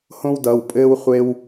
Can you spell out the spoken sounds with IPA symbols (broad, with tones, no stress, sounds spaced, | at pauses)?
h õ˥ w d ʌ˩˧˩ w pʼ ɘː˥ w χʷ e˥ w